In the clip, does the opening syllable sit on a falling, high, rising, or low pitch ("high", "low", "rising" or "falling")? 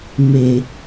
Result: low